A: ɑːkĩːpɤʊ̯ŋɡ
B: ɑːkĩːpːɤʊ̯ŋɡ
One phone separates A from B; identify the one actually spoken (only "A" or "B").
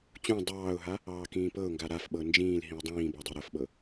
A